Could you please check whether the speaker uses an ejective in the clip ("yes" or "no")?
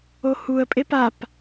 yes